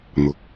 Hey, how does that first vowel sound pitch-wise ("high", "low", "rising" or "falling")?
low